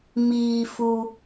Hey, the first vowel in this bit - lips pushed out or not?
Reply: no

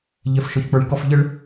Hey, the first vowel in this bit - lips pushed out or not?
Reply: no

